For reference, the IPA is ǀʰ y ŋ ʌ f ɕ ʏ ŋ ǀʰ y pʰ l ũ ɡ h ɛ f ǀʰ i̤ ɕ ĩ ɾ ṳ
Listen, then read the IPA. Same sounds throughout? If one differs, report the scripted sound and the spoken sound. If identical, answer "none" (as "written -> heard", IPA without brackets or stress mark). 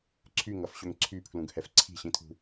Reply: ɾ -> tʰ